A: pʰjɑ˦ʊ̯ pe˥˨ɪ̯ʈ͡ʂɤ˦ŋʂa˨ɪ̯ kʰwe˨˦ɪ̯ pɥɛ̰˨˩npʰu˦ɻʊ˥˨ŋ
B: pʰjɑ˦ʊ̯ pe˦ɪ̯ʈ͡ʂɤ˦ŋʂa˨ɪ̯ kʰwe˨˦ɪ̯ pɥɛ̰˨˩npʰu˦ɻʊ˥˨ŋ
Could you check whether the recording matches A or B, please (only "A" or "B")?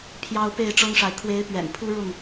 A